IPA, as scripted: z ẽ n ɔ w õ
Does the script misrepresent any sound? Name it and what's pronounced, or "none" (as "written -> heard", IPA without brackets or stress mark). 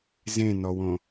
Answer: none